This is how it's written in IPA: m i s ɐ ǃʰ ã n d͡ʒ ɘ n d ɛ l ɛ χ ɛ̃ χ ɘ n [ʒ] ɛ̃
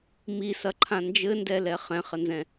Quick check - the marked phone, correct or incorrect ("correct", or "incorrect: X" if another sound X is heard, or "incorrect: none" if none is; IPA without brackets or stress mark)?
incorrect: z